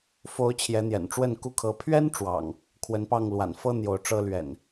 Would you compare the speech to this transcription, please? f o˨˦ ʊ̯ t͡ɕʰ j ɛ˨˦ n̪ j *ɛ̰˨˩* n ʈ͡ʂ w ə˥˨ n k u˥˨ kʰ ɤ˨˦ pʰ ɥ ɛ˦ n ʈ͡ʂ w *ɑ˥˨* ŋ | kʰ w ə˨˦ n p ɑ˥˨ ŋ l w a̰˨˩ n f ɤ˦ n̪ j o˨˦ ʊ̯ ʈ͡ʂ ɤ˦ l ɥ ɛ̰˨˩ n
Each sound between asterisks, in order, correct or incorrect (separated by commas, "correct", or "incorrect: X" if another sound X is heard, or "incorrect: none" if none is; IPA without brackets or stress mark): correct, incorrect: ɑ̰˨˩